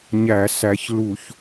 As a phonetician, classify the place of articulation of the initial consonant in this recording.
palatal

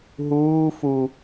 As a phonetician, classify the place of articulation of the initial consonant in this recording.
glottal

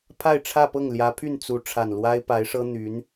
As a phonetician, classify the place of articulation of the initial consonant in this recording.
labial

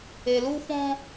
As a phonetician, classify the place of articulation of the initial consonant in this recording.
alveolar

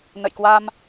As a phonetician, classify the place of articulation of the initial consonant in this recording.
alveolar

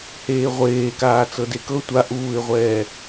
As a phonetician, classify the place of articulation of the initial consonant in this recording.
glottal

